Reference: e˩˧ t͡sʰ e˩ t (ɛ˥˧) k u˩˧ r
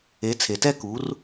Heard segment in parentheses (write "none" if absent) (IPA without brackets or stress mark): ɛ˥˧